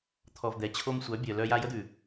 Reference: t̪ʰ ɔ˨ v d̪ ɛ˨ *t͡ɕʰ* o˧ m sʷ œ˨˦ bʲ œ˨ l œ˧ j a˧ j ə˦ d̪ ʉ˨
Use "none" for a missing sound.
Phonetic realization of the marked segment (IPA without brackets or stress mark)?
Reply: t͡ɕʰ